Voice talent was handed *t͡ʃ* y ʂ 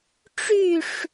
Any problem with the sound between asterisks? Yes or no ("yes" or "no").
yes